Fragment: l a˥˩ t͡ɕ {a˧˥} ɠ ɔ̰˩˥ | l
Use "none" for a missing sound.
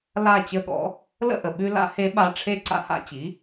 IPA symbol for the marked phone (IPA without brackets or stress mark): ə˧˥